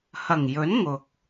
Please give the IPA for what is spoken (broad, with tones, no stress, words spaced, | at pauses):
hɐ˨˩ŋjɵ˨˥n ŋʊ˨k̚